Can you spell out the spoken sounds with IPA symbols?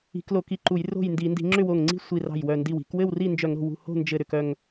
i̤˧˩˧ k l o˧˩˧ k i˧˩ ǃ u˧˩˧ j r o̤˥˨ j n d i˧˩˧ n d i̤˧˩˧ ŋ͡ǁ ʏ˥˨ w o˧˩ ŋ ŋ͡ǀ i̤˥˨ sʷ i˧˩ r ɑ̤˧˩ j w œ˧˩ n d i˧˩ w i̤˧˩˧ k w ɘ˥˨ w r i˥˨ n d͡ʒ œ˧˩˧ ŋ ɾ o̤˧˩ w ṳ˧˩ h o̤˥˨ n d͡ʒ ɘ˧˩ ɾ ʏ˧˩ k œ˧˩ ŋ

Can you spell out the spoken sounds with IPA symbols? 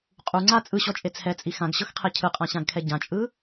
qʼ u ŋ͡ǀ a t͡sʼ ɯ ɕ ɔ t͡ʃʼ e t͡sʰ ɛ t͡sʼ i x ã ɡ ɕ ɤ x qʰ ɛ cʰ ɯ qʼ ã ɕ ã ɡ kʰ ɛ ɟ ã t͡ʃʼ ɯ

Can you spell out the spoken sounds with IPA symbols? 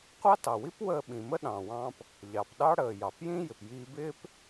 qʷ ɑ˥ t ɑ˩ w i˥ p w əː˧ ɓ ĩ˩ m ə˥ ɗ ɑ̃˩ w ɑ̃˧ p | ʎ ɑ˩ p ɗ ɑ˧ ɽ əː˩ j ɑ˩ p j ĩ˥ j ɪ˩ p j iː˧ b ɪː˥ p

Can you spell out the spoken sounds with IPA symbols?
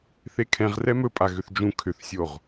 θ e kʰ ɛ̃ ʁ r ɛ m ɵ pʼ a ɣ ʏ θ d͡ʒ ũ kʰ ʏ θ sʲ o ʁ

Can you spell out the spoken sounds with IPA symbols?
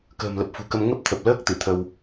k ə̤ː˨˩ m l ə˨˩ p̚ f ṳ˨˩ k ə˧ m ŋ ə˦˥ p̚ t̪ʰ ə˨˩ p̚ l əː˦˥ k̚ t̪ ɨ˧˩ t̪ʰ ə˧ w

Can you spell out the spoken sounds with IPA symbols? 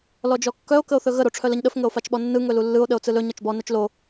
l ɔ d͡ʒ ɔ kː œ o̯ k ə o̯ θ ɵ ɣ ə ɾ o ʈ͡ʂʰ œ l ə ɲ ɗ ə f ŋ ə o̯ f a t͡ʃ ɓ ɔ nː ɯ ŋ ɵ l u lː ɯ o̯ ɗ ə o̯ t͡s ɯ l ɵ ɲ ɒ t͡ʃ b ɔ n œ t͡ʃ l o

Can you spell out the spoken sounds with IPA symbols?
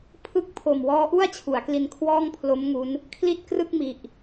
pʰ ɯ˦˥ k̚ pʰ o˨˩ m w ɔː˦˥ ʔ u˥˩ a̯ t͡ɕʰ u˩˦ a̯ k l i˧ n kʰ w ɔː˥˩ ŋ pʰ l o˦˥ m ŋ u˦˥ n | kʰ l i˥˩ t̚ k r ɯ˥˩ k̚ m i˨˩ ʔ

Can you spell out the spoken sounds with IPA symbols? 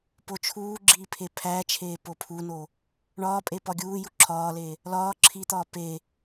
p o t͡ʃʰ uː ɡ͡ǁ iː pʰ e pʰ æ t͡ʃʰ eː p o pʰ u n o | ɳ ɒː pʼ e p ɒ ɡʲ uː j u ǁʰ ɒː l e | l ɒː ǁʰ i t̪ ɒː p e

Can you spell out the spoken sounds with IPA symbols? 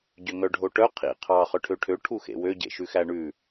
ɟ ø ŋ œ ɖʱ o ʈ œ qʰ ḭ qʰ ɑ χ œ ʈʰ ø ʈʰ ø ʈʰ u x ḛ w ø ɟ ḛ ʃ ʉ x æ ɳ ʉ

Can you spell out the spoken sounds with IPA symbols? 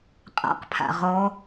qʼ a̰ q pʰ a̰ ʁ ɔ

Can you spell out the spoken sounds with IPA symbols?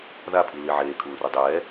ð a pʰ i l i ʕ eː kʰ uː r u dˤ ɛː

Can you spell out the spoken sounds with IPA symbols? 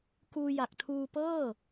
k uː˧ j a˨˩ k̚ tʰ uː˧ p ɤː˥˩

